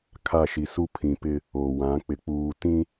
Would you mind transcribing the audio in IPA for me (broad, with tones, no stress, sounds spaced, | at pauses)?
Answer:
kʰ a˦˨ ʃ i˨ s u˦ pʰ ĩ˨ p ɪ˦ | o˨ w ã˨˦ k͡p ɪ˨ k͡p uː˨ t ĩ˦